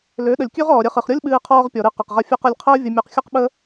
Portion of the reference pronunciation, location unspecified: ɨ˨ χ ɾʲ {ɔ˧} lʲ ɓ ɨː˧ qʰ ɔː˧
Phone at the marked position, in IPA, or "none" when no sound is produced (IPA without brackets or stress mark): ɔ˦